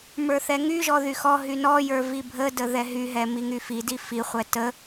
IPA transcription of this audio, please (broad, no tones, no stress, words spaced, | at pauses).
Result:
mə˞θɛŋyʒɔ ðyxɔɦy nɔjə˞ vibʱədə ðɛɦyɦɛ miŋyfidi fiχʷɛ tə